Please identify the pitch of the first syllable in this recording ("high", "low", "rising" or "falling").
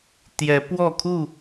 rising